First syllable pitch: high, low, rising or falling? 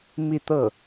falling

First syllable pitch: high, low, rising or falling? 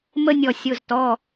high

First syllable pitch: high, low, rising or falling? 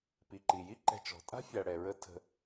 low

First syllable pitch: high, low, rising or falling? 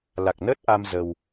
low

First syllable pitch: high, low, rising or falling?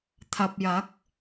low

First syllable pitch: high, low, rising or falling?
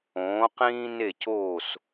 rising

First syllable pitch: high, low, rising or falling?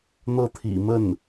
falling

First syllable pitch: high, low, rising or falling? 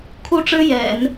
high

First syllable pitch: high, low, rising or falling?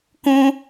high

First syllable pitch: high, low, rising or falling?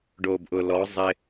low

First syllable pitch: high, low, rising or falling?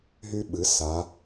high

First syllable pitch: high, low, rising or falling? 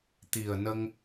low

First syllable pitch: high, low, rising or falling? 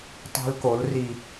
high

